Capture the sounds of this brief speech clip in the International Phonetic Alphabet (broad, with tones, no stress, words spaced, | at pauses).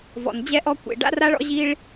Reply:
vɔ̰˩n d͡ʑɛ˥ʔɔ˥ kʷḛ˩ɖa̰˥ra˥ɭɔ̰˥ ʑi˥ɭ